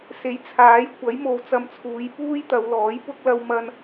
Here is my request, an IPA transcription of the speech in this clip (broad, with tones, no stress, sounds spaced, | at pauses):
s e˨˥ j t͡sʰ aː˨˥ j kʷ ɐ˨˥ j m o˨ w t͡s ɐ˧ m t͡sʰ uː˨˧ j p uː˥ j t̪ ɐ˨˧ w l ɔː˨˥ j p ʊ˥ k̚ l ɐ˥ w m ɐ˥ n